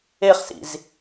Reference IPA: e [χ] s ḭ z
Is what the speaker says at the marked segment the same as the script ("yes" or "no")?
yes